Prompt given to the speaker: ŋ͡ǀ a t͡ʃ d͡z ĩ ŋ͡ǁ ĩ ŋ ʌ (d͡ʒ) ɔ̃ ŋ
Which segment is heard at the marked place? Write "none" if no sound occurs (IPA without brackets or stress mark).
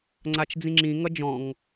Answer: d͡ʒ